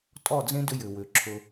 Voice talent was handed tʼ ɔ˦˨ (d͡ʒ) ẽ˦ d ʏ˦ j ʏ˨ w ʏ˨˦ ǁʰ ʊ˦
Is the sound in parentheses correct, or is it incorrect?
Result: incorrect